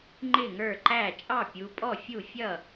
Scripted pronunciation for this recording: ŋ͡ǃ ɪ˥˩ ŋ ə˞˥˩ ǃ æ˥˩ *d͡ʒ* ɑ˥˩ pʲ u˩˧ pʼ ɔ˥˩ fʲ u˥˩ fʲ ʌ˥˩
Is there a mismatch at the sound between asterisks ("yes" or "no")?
yes